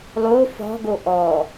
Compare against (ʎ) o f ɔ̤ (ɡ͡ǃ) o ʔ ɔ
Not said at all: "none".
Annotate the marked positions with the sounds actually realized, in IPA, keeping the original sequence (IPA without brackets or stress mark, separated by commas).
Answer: lˠ, ɡ